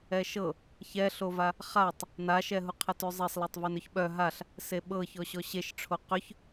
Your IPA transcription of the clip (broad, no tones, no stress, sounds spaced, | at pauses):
ɛ ʃ ɤ | ç ɛ ɬ o v a | χ a tˤ | n a ʃ ɛ ɦ u qʰ ɛ t ʉ zˤ e sˤ l ɛ tˤ v e n ʏ ç ɓ œ ɦ a ɬ | s e ɓ ɤ ç ɔ ɕ ɔ ɕ e ʃ ʈ͡ʂʰ o q ʏ ç